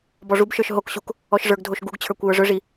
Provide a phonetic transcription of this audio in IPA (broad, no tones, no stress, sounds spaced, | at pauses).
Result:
b ɔ ʐ u b ʃ ə˞ ʃ ɦ o k ɕ u k | ɔ ʃ ʐ ə˞ ɡ dʱ o ʃ ɡ u ɡ t͡ɕʰ ə˞ kʷ j ə˞ ʐ ɵ ʐ i